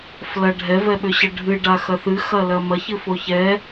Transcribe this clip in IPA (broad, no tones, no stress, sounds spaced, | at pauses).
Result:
f l ɐ ɖʱ ɛ v ɛ ɓ ʏ ɕ ə ɖʱ ɨ ɖ a x ɐ θ ɨ x ɐ l ɐ m ɐ ç ɨ f o ç ɛ